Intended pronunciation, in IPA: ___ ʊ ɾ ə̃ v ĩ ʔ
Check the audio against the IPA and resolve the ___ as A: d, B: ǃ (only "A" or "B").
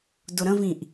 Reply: A